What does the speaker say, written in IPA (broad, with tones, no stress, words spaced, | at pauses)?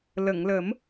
lə˨˩˨ŋlə˨˩˦m